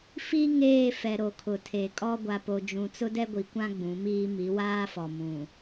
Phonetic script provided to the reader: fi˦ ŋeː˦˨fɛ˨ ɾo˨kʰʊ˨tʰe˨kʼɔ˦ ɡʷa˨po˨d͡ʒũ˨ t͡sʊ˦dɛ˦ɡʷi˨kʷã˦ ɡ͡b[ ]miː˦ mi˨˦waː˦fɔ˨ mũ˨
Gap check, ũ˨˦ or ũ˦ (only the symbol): ũ˨˦